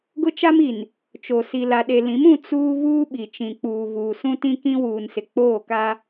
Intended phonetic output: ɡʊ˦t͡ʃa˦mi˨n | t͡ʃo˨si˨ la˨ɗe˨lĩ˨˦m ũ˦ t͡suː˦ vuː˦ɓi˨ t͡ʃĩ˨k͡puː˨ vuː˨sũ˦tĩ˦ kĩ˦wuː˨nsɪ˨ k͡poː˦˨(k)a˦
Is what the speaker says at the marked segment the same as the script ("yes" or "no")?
yes